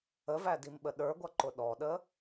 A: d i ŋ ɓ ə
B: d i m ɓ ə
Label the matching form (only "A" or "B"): B